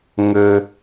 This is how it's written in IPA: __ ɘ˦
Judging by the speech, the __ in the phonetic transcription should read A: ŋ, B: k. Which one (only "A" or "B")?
A